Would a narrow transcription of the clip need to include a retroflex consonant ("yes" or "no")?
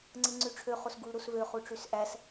yes